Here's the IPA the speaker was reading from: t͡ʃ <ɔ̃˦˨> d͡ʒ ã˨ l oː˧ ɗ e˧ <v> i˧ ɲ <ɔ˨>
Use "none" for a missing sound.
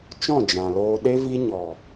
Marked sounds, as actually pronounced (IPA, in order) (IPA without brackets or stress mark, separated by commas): ɔ̃˦˨, v, ɔ˨